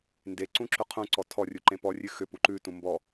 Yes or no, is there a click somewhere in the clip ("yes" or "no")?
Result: yes